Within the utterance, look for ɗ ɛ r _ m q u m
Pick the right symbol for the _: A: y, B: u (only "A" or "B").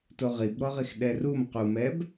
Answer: B